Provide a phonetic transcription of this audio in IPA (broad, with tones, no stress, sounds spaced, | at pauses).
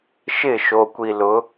ʃ ɪ˦˨ ʃ o˨ kʷ i˨ l ʊ˨˦